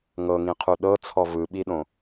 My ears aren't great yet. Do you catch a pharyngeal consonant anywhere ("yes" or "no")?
no